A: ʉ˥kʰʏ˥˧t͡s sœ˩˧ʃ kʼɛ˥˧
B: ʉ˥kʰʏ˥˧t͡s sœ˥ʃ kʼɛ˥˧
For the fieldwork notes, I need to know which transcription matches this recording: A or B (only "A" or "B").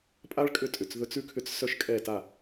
B